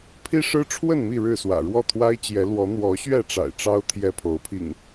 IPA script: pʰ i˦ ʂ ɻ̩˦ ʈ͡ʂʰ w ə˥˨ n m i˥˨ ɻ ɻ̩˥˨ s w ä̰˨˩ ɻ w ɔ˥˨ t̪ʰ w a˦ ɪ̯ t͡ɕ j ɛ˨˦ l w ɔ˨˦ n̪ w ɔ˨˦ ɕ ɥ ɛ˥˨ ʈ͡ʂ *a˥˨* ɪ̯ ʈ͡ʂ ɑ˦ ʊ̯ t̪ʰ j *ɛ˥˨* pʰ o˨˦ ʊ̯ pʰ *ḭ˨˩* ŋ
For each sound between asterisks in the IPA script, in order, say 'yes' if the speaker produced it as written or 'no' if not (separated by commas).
no, yes, yes